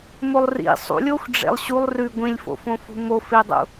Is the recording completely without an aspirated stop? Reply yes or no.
yes